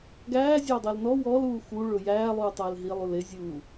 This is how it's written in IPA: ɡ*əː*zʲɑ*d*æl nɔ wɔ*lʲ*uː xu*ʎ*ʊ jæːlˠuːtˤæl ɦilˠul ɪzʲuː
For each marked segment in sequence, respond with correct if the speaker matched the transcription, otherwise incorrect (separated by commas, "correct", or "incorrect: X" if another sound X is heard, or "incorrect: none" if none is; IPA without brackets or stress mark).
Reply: incorrect: æː, incorrect: dˤ, incorrect: l, incorrect: ɭ